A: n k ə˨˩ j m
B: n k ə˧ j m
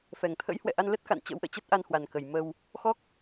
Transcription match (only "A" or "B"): A